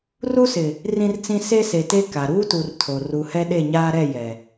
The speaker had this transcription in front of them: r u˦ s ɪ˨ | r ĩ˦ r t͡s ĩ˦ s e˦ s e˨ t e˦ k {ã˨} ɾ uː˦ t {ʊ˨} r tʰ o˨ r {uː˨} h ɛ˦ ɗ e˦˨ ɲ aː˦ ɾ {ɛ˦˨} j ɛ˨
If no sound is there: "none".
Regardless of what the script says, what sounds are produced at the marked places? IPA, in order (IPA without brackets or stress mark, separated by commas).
a˨, u˨, u˨, ɛ˦˨